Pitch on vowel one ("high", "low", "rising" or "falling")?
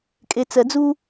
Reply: low